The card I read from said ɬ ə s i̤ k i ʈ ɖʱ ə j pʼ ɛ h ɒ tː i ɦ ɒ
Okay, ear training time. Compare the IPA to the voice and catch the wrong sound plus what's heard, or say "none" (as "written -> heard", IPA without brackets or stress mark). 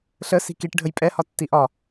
ɦ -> ʔ